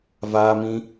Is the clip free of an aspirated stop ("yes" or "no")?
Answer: yes